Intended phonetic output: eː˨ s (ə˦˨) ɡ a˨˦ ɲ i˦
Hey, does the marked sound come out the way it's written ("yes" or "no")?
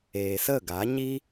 yes